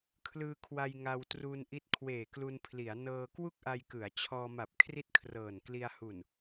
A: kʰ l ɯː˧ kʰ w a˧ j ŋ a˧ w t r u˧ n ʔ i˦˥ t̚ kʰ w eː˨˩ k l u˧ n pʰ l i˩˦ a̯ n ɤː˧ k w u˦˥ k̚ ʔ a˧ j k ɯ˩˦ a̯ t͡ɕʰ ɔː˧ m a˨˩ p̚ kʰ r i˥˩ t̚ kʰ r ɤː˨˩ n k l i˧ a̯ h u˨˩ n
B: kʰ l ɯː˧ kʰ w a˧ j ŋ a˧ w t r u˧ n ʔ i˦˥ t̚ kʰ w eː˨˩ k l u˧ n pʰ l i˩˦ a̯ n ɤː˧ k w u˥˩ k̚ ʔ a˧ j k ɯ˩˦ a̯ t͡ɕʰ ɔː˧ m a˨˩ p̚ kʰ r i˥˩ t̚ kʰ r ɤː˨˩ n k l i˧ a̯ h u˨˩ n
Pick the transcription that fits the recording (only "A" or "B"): B